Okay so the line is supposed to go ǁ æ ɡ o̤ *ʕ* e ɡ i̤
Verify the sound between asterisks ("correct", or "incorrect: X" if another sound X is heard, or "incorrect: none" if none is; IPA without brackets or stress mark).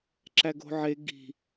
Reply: correct